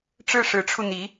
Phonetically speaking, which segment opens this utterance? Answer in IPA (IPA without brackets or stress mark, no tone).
ʈ͡ʂ